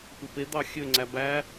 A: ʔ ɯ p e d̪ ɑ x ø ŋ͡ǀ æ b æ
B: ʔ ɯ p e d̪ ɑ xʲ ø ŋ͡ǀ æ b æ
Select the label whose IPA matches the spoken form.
B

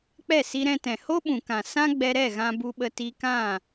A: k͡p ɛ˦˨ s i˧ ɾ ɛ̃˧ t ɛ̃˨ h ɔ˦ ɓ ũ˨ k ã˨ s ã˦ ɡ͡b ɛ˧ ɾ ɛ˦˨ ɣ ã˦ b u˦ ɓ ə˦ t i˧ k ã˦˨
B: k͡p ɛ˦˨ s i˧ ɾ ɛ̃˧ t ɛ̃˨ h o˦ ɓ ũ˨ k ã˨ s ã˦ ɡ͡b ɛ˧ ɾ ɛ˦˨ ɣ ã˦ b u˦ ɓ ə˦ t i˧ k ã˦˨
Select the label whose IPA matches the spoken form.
B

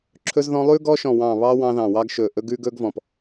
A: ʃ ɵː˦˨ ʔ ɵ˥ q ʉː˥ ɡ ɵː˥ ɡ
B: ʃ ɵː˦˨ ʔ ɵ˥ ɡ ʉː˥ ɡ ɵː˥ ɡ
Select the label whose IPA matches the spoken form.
B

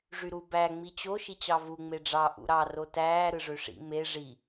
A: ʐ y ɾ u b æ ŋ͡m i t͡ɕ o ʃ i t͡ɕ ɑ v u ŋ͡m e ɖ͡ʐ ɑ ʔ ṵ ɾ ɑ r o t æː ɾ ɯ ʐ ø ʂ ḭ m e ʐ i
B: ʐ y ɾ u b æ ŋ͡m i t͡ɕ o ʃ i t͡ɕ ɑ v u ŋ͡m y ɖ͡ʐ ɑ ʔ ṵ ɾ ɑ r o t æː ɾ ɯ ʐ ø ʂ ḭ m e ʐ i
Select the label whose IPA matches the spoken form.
A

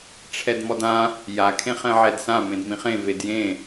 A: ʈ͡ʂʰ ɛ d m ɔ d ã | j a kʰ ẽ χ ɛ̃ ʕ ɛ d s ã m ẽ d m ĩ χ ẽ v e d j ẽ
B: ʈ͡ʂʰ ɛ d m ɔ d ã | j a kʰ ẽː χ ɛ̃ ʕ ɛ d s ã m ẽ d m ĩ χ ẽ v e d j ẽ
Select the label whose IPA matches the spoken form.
A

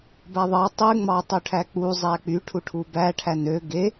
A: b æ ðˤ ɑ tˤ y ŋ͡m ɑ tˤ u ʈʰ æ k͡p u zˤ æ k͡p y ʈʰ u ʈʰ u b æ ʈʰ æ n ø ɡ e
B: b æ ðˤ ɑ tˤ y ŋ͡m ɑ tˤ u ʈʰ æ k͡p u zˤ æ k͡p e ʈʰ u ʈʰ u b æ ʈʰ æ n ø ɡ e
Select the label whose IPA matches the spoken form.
A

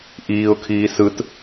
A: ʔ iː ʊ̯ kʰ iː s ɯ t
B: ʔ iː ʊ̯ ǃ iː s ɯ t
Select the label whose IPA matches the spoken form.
A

